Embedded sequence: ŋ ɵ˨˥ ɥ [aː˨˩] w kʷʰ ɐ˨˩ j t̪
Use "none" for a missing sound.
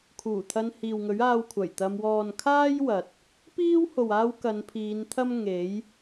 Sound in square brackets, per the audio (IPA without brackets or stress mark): aː˧